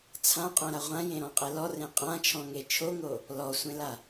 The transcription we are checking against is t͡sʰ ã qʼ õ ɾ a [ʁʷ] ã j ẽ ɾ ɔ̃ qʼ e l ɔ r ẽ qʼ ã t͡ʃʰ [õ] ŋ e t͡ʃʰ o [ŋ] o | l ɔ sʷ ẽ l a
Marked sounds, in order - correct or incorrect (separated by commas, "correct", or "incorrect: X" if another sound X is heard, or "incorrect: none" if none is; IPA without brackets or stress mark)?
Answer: correct, incorrect: ɔ̃, correct